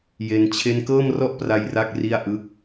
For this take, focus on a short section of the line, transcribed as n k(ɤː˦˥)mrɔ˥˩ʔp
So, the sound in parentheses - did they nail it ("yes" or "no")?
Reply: no